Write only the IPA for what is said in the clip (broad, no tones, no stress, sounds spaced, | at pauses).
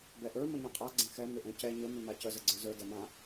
b ɛ ʔ ə˞ m ə ɲ ɛ̃ qʼ a ɡ͡ǀ ɛ̃ x ɛ m ʏ ʔ ɛ̃ c ɛ ɲ ə m ʏ m a c ə z ə ɡ͡ǀ ə˞ z ə˞ d ɛ m ã